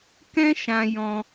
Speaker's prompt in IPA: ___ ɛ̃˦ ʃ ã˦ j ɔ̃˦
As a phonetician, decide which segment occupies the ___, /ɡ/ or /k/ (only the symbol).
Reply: k